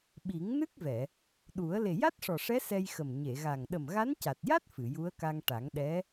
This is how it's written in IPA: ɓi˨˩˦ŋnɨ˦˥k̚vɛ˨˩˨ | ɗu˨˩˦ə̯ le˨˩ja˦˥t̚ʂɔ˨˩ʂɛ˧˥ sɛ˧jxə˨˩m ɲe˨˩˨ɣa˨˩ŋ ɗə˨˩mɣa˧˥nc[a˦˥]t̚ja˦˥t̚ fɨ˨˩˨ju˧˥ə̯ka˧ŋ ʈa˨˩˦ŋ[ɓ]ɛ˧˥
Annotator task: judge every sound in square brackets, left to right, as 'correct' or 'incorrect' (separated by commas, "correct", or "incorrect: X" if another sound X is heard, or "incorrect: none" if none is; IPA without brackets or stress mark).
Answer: incorrect: a˨˩, incorrect: ɗ